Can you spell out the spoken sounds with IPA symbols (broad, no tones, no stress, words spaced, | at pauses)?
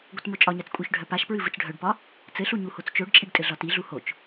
ɡʷɘtmot͡ʃʼɒɲat͡s kʷʼœçɖʱœpaʃpɹɨ vɨt͡sɖʱœɖpɒ | t͡sɘɬu ɲuhot͡st͡ʃoɖt͡ʃʼiɖ tʼɘɮɒtiɮu hot͡ʃ